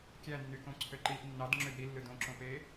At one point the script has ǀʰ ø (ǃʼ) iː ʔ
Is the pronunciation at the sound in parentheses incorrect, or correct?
incorrect